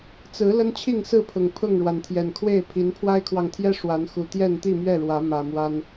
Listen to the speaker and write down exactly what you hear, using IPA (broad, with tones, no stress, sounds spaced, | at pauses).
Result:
t͡s ɹ̩˨˦ l ə˦ n t͡ɕʰ i˥˨ ŋ s ɹ̩˥˨ pʰ ʊ˨˩ ŋ pʰ ʊ˥˨ ŋ ɻ w a˩ n t̪ʰ j ɛ˨˩ n kʰ w e˥˨ ɪ̯ pʰ i˨˦ n pʰ w a˦ ɪ̯ kʰ w ɑ˨ ŋ t̪ʰ j ɛ˦ ʂ w a˨˦ n x u˨˩ t̪ j ɛ˥˨ n t̪ i˥˨ m ɥ ɛ˥˨ ɻ w ä˨˦ m ä˨˩ m w a˦ n